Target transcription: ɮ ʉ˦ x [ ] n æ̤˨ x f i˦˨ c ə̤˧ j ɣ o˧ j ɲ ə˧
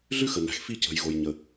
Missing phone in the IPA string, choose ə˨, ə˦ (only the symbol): ə˨